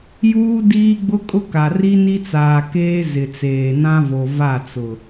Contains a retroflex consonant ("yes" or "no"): no